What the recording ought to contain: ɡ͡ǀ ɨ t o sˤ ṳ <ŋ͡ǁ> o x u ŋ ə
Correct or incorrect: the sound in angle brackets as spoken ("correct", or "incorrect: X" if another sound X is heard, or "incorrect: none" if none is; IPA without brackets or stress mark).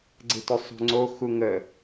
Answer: incorrect: ŋ͡ǀ